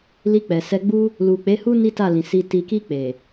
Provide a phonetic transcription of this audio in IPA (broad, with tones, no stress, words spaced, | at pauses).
li˧k͡pɛ˨sɛ˧ɡ͡bu˦ | lu˨k͡pe˨˦hu˦ ni˦ta˦˨lĩ˨ si˨ti˨ki˧ k͡pe˨